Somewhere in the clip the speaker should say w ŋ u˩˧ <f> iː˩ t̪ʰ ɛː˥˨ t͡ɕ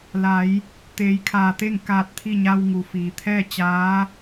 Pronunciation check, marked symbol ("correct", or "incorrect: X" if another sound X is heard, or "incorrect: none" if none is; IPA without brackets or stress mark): correct